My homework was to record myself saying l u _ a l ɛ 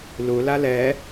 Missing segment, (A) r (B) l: B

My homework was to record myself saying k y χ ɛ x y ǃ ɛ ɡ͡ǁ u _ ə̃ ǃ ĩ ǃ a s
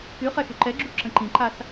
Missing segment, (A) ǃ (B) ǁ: B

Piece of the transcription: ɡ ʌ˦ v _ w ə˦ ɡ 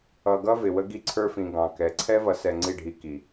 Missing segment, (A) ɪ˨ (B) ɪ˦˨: A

